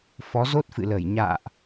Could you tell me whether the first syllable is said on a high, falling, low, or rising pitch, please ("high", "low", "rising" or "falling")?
rising